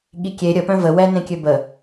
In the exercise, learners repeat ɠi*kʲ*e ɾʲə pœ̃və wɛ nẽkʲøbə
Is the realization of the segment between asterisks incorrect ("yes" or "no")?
no